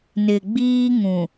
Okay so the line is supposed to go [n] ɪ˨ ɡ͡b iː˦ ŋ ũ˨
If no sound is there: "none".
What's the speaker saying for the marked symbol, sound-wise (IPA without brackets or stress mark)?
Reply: n